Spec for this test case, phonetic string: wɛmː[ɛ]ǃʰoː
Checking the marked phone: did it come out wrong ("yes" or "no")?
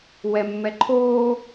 no